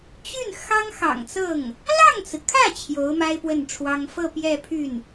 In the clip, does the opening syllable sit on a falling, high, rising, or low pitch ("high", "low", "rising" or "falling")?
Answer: falling